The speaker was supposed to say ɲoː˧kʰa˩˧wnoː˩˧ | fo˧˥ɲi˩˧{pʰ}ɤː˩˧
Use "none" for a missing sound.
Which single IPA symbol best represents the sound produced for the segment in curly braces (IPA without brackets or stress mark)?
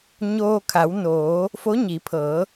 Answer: pʰ